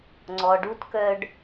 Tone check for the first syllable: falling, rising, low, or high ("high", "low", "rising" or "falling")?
low